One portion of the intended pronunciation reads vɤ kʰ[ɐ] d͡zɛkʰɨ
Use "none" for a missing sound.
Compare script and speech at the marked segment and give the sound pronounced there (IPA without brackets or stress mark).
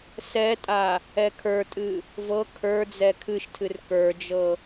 ə˞